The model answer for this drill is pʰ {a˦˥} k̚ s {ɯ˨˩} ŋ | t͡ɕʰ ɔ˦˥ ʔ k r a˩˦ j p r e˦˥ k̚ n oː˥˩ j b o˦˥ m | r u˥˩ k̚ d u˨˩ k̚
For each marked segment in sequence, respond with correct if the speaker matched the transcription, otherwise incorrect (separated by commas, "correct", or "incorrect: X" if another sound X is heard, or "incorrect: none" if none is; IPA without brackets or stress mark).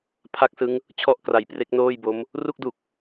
correct, incorrect: ɯ˦˥